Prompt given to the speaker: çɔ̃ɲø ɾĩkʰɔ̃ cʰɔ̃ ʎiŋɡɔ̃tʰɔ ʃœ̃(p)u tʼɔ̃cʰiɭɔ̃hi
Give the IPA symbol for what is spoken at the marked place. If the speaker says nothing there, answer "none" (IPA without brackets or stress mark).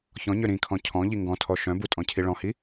b